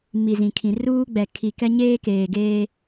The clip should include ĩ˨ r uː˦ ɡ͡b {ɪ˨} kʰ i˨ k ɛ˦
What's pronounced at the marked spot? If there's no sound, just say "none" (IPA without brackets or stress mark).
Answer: ɛ˨